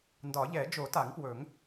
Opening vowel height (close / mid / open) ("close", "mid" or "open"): open